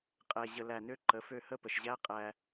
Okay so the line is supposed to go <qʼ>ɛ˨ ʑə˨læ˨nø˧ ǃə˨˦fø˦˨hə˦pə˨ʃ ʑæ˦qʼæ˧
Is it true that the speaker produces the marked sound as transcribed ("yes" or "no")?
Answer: yes